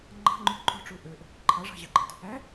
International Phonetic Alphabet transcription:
ŋ͡ǃɑ̤ŋ͡ǃu ǃʼo̤ʈ͡ʂu ʔøʔ | ǃʰɑʐɑ̤ʑɑɡ͡ǃɑ̤t | æ

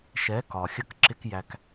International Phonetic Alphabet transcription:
ʃɛ˨˦ kɒ˨xʲə˧kǁɪ˧k jæ˧k

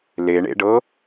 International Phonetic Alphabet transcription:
leɳḛɖɤ

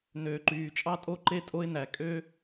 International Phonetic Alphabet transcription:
nøː˩ǃyː˩t͡ʃʼɑ˥tʼo˥ ǃe˥tʼo˥ɪ̯næ˩ kʼø˥

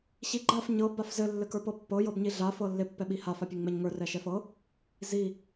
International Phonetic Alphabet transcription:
ɕiɡ͡ǃaf ɲɤ bafzɘ lːɘkə˞pɤpːɤ jɤbɲiɮa fɤlːɪ pːɛɓiha fapʲɘŋŋ͡mɛɲŋə˞ rɛʃɛfɤ | zi

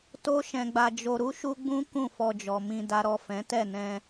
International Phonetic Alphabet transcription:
to˦ʃɛ̃˧ɡ͡ba˧ d͡ʒo˧ɾu˦ʃu˦ɡ͡bũ˦ kũ˦˨fɔ˧d͡ʒɔ˨mĩ˧ da˨ɾɔ˨ fɛ̃˨˦tɛ˦˨nɛ̃˧

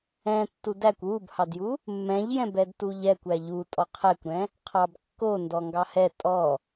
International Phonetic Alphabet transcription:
ɛ̃ tːudækʷ wubhɑdju | mːɛ̃ʎjɛ̃ bɛdtuʎɛkʷ æʎu tʼɔqʰɛkʷɾɛ̃ | qʰɑb kːo ndɔŋɡɑhɛ tʼɔ

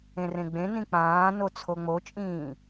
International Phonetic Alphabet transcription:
ẽrẽɡ͡bẽ nĩk͡pãːno t͡sʰoŋ͡mot͡ʃʼĩː

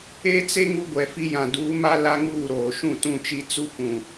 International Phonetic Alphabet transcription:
e˦t͡se˦ ŋu˦ɡʷɛ˨fi˦jã˨ duː˨˦ma˦ la˦ŋuː˦˨ɾoː˨ ʃũ˦˨tũ˦˨t͡ʃi˦ t͡su˦kʷũ˨

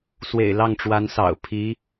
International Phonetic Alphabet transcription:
swḛ˨˩ɪ̯lɑ˥˩ŋʈ͡ʂwa˧˥nsɑ̰˨˩ʊ̯ pʰi˧˥

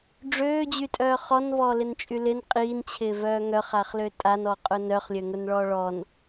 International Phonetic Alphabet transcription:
ɖ͡ʐøːd͡ʑytʼœː χɔnvɔːlɪnt͡ʃʼy lɪn qʼiːnt͡ɕʰɪːvœː ŋœχaχlø tʼanɔqʼʊ nœχlʲøŋʊnɭɔː ɭɔn

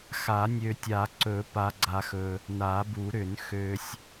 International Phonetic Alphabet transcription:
xa˨˩˦nʲø˨tʲa˨˩˦ ǀɵ˨˩˦ pa˨ɡ͡ǀa˨xɵ˨ | na˨˩˦bu˨˩˦ɾʏ˨˩˦n xø˨sʲ

